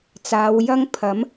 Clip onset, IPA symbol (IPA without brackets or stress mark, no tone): t͡s